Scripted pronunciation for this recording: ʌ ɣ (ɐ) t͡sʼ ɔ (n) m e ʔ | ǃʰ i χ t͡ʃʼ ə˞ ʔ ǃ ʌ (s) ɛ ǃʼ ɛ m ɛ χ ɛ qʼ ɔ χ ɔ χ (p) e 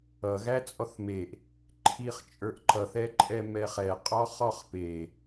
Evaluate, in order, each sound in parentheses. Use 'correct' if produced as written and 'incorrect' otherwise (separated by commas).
incorrect, incorrect, incorrect, correct